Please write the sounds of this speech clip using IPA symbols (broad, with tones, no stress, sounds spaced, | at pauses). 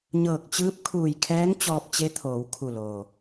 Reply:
ɲ ɤː˧˩ k̚ t͡ɕ ɯː˧˥ p̚ kʰ uː˧˩ j kʰ ɛː˧˥ ŋ t͡ɕ ɔː˧ p̚ t͡ɕ e˧˥ t̪ʰ oː˩˧ w kʰ u˧˩ l oː˩